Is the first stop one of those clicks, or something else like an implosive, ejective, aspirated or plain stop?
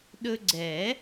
implosive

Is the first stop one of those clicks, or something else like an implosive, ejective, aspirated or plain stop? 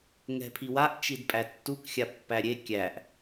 aspirated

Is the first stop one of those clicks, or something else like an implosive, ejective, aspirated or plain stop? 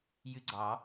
click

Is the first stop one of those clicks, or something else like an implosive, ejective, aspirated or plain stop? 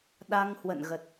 implosive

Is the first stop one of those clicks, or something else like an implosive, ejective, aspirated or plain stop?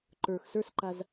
click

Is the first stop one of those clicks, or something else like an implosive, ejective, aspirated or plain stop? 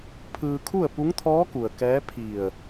aspirated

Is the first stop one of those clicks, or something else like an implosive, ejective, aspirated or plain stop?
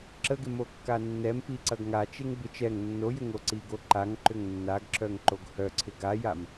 click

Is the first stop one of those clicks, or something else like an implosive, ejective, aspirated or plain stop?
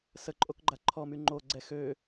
click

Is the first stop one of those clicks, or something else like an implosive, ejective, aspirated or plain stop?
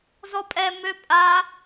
ejective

